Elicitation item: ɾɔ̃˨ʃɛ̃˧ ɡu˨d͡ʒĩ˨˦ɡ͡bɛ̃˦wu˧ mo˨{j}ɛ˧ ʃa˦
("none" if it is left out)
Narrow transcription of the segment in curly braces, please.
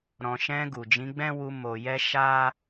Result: j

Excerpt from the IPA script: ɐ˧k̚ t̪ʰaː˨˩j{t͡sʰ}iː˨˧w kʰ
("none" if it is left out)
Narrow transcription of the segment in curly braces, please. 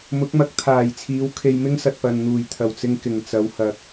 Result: t͡sʰ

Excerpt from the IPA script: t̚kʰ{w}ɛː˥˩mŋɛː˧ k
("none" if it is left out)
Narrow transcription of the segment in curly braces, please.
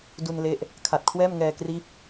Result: w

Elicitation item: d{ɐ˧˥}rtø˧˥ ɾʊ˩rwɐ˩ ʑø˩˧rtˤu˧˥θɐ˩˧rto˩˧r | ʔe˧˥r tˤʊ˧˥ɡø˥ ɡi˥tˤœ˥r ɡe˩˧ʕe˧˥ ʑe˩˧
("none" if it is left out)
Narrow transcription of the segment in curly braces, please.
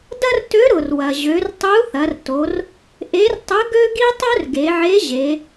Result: ɐ˥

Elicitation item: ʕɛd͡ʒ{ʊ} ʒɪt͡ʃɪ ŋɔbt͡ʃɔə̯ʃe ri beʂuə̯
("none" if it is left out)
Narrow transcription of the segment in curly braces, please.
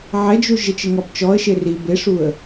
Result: u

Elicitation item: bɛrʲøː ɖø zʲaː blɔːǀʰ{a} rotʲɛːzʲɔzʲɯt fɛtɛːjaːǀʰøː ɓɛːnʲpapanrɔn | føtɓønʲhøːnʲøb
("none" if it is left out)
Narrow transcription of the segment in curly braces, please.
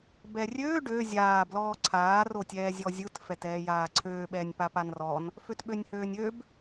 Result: aː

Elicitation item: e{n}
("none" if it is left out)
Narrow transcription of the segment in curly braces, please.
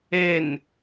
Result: n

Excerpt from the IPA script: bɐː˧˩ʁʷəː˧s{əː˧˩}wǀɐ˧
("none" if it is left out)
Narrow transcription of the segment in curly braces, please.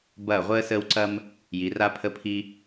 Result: əː˧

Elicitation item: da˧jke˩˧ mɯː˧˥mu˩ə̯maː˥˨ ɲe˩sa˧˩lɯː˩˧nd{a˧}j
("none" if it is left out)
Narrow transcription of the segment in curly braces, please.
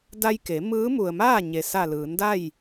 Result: a˥˨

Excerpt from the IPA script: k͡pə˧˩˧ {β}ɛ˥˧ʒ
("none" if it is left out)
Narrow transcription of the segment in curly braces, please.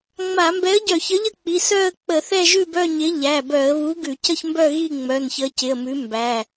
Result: θ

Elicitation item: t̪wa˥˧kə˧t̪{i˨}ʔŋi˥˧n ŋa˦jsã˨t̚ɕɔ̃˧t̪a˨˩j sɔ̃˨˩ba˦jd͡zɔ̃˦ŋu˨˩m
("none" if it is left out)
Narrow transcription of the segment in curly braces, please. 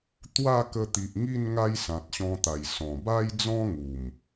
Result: i˨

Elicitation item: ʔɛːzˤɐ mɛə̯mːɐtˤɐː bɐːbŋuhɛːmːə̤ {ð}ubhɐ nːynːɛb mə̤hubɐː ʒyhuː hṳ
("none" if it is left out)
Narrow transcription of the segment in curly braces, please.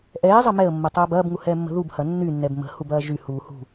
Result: ð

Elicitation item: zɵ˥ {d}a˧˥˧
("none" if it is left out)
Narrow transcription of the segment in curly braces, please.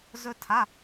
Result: tʰ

